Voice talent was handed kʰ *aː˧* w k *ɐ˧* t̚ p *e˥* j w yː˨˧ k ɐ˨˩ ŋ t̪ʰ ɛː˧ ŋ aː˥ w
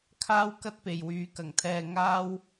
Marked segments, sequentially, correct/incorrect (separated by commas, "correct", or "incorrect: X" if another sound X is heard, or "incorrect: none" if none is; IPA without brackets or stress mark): incorrect: aː˥, incorrect: ɐ˥, incorrect: e˨